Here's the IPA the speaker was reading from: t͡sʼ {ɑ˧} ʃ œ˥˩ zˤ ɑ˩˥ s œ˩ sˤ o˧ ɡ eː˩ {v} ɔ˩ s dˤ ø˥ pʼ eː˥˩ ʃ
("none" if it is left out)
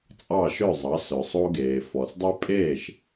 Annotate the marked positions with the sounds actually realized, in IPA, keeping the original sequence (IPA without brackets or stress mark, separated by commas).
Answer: ɑ˥˩, f